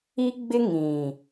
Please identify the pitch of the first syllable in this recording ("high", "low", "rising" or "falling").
high